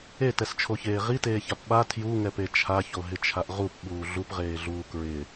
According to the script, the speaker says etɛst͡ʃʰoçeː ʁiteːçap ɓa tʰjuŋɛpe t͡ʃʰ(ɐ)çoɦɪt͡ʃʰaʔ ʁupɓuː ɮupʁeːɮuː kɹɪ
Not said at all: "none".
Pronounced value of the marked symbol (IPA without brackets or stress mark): a